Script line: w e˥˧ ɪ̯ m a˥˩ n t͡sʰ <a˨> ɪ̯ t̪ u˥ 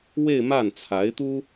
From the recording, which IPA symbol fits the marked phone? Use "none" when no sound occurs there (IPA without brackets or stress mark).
a˧˥